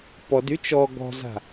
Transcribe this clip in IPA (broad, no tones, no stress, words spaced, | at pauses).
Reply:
pɔd yt͡ʃɔ ɡɔ̤za̤